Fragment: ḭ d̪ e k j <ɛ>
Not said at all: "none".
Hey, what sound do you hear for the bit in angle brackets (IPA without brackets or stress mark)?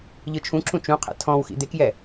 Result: ɛ